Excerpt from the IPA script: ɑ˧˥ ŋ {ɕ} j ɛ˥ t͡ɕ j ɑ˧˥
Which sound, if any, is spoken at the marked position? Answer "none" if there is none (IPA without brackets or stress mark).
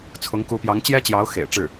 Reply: t͡ɕ